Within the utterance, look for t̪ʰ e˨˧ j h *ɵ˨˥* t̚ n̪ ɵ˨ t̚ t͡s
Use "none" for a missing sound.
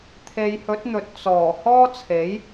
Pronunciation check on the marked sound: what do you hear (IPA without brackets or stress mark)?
ɵ˨˥